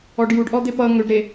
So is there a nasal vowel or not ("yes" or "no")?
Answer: no